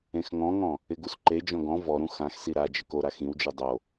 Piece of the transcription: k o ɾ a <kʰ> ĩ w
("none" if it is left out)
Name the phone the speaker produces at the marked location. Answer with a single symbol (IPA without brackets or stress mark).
x